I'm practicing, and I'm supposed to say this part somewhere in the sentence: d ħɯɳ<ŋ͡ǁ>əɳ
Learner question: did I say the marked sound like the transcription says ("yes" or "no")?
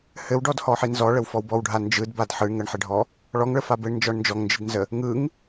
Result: no